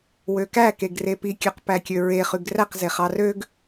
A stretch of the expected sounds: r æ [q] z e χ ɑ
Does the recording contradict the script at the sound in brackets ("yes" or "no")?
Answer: no